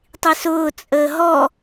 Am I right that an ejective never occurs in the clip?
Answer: no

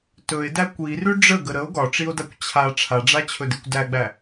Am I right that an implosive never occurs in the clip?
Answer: yes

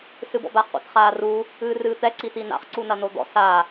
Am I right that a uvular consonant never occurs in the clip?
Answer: no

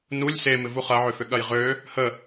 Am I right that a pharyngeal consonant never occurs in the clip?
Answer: no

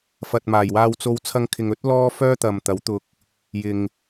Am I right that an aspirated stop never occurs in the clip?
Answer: no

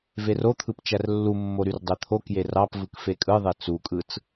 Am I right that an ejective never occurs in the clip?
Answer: no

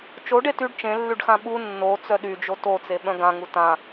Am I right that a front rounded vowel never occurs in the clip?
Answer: no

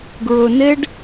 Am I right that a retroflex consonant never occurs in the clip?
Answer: no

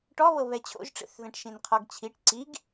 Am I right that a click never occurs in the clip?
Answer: no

